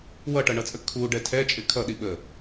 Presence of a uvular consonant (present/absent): absent